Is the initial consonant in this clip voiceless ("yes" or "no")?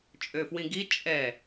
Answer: yes